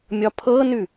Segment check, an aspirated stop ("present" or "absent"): present